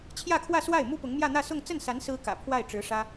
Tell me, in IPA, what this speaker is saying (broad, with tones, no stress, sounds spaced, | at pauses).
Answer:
t͡ɕʰ j ä˥˧ kʰ w ä˥˧ s w a˥˩ ɪ̯ m u˥ p ʊ˧˥ ŋ m j ä˥˧ n̪ ä˥˧ s ʊ˥˧ ŋ t͡s ə˥˩ n s a˧˥ n s ɹ̩˥ k ä̰˨˩ pʰ w a˥˩ ɪ̯ ʈ͡ʂ ɻ̩˧˥ ʂ ä˥